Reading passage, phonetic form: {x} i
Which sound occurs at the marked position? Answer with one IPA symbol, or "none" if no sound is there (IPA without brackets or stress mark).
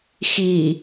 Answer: x